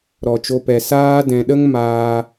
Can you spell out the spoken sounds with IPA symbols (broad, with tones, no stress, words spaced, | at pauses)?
ɾɔ˨t͡ʃo˧pɛ˨ saː˦ dɛ̃˧ɗə˦ŋmaː˧